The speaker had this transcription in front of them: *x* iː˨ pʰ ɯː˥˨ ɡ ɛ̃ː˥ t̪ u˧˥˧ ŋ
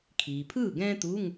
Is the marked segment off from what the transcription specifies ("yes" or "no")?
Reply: yes